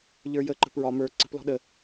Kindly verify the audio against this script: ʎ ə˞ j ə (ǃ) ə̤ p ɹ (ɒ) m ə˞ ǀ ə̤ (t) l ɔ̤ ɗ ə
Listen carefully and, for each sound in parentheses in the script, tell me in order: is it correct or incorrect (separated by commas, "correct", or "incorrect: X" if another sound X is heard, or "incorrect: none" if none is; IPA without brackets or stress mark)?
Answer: correct, correct, incorrect: p